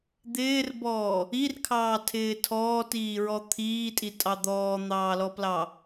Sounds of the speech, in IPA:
d̪ ɪː r b ɔː | i r kʰ ɑː tʰ ɪː tʰ ɔː t iː ɹ ɔ t̪ʰ iː tʼ i tʼ ɑ d̪ ɔː n̪ ɑː l ɔ p l ɑ

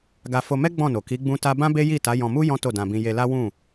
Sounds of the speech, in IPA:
ɡ a˧ f o˧ m ɛ˦ ɡ͡b ɔ̃˦˨ n o˨ k i˨˦ ɡ͡b ũ˦ t a˦ b ã˦ b e˦ j i˦˨ t a˨˦ j ɔ̃˧ m u˦ j ɔ̃˦ t o˦˨ d ã˧ b ĩ˧ j e˧ l a˦ w ũ˦˨

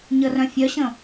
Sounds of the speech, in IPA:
ɲ ə r œ̃ fʲ œ ɕ ə̃

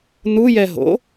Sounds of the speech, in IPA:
n u j ɛ ɦ o̰

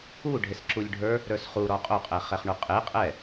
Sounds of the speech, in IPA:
u ɖʱ e s ǁ u lʲ ɖʱ ə˞ | ɾ ə˞ s χ u ɾ ɔ qʼ o qʼ ɛ χ ɛ χ ɳ u qʼ e qʼ ɛ

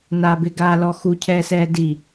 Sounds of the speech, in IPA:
n aː b ɪ ɡ aː l ɔ x u cʰ ɛː s ɛː d i

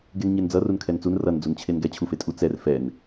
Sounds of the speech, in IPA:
ɡ e n ɲ e n d͡z ʌ r u n kʰ ɛ n t͡s u n r ʌ n d͡z u n t͡ɕʰ e n ɡ ɛ t͡ɕʰ u f e tʼ u t͡s ɛ r f ɛ n

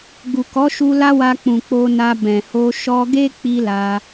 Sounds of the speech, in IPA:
ɡ u˨ k ɔ˨˦ ʃ u˧ l a˦ w a˧ k͡p ũ˨ k͡p o˧ n a˧ b ɛ̃˨ h o˧ ʃ ɔ˧ ɡ e˦ k͡p i˧ l a˧

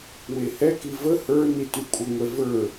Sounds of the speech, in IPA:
w e h ɛ k i v ə h ə˞ n i t y kʷʼ ə ŋʷ ɛ v ə˞

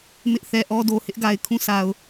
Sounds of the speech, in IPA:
m ɪ˦ ʔ θ ɛ˨ ʔ ɔ˦ d o˨ h ɪ˦ ʔ ɡ a˨ ɪ̯ kʰ ũ˦˨ s a˨ ʊ̯

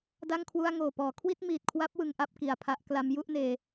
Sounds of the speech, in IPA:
d a˥˩ ŋ kʰ w u˥˩ a̯ ŋ oː˨˩ p ɔː˩˦ kʰ w i˥˩ t̚ m iː˨˩ t̚ kʰ w a˦˥ p̚ w ɯ˩˦ ŋ ʔ a˥˩ p̚ k i˨˩ a̯ pʰ a˦˥ ʔ k l a˦˥ m j u˥˩ ʔ n eː˧

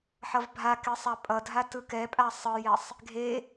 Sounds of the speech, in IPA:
ħ ʌ v bʱ a k e sˤ a pʼ ʌ dʱ a t ɯ k ɛ pʼ a sˤ ɯ j ɛ sˤ | ɡʱ e

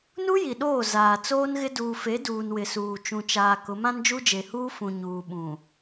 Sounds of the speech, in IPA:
n u˦ j i˨ ɗ oː˦˨ z aː˨ t͡s oː˦ n ɣ ɪ˦ d uː˨ f e˨˦ d uː˨ n w ɪ˨ s uː˨ t͡ʃ ũ˨ t͡ʃ aː˨ k ʊ˨˦ m ã˦ n d͡ʒ u˦ d͡ʒ e˨ h uː˦ f ũ˨ ɲ uː˨ ɓ ũ˨

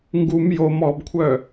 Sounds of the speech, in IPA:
ŋ ɡ u m j o m ɔ b kʷʰ œ

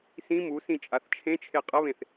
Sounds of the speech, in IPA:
s ĩ m u s ĩ t͡ʃʼ a θ t͡ʃʰ ẽ t͡ʃʰ e qʼ ɐ β ẽ θ

